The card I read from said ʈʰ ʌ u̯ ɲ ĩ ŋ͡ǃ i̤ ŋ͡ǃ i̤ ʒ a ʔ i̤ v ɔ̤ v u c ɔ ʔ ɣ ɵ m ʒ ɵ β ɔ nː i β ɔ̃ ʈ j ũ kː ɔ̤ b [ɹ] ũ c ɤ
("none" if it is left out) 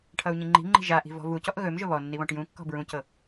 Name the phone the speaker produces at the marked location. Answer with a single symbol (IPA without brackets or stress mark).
ɹ